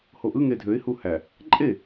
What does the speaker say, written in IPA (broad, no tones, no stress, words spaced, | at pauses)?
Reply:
hoʔɯ ŋedʱøɪ̯ huhæ | ǃʼe